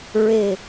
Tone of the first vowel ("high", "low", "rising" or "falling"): low